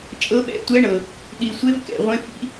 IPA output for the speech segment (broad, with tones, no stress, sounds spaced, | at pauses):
t͡ʃʼ ɤ˧˥ ɓ ɛ̰˧˥ tʷ ɛ˧˥ ɳ ɤ˨˩ | ɗ i˨˩ sʷ e˧˥ v k ɛ̰˨˩ ʁʷ ẽ˧˥ f ḭ˧˥